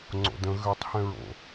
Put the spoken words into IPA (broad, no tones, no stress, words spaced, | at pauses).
ŋ͡ǀo̰də̃ ɣøtˤhɛ̃ɹo̰